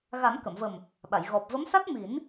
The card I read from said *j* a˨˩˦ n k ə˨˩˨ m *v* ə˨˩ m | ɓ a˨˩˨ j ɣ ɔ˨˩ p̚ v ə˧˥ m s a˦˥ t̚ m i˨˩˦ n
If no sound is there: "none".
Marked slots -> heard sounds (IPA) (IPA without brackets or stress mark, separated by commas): ɣ, v